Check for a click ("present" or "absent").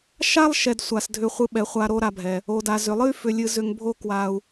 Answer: absent